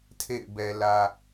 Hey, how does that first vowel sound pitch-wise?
falling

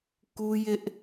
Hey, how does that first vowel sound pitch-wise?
high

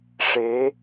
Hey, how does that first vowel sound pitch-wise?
rising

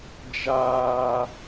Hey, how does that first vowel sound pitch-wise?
high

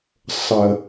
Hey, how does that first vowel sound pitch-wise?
low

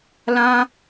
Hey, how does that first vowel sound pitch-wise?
high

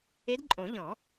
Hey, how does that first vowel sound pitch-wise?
rising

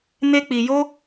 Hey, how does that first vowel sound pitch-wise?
high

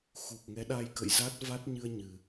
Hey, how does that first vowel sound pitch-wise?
low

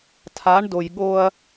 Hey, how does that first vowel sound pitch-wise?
rising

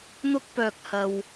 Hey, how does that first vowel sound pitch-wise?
high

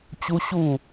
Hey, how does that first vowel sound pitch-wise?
high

